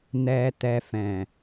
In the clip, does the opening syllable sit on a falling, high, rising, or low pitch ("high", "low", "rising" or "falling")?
low